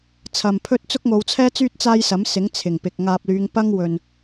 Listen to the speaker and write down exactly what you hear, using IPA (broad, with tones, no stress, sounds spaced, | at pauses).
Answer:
t͡sʰ ɐ˨ m pʰ ɵ˥ t̚ t͡s ʊ˥ k̚ ŋ o˨˧ w t͡sʰ ɛː˥ t͡s yː˥ t̚ t͡s aː˥ j s ɐ˨˥ m s ɪ˨˥ ŋ t͡sʰ ɪ˨˩ ŋ p ɪ˨ k̚ ŋ aː˨ p̚ l yː˨˧ ŋ p ɐ˥ ŋ w ɵ˨ n